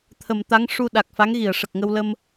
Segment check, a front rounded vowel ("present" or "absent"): absent